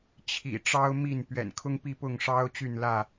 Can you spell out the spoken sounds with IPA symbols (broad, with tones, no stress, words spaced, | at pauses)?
t͡ɕʰḭ˨˩ ʈ͡ʂɑ˦ʊ̯mi˥˨n pɥɛ̰˨˩nkʰʊ˦ŋpi˥˨pʊ˥˨ŋ ʂɑ˦ʊ̯t͡ɕy˥˨nlä˥˨